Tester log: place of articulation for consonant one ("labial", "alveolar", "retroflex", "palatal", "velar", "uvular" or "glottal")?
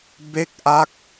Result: labial